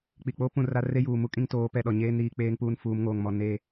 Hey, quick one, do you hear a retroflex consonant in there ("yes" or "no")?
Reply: no